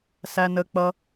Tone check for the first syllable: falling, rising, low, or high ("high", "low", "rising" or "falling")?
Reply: low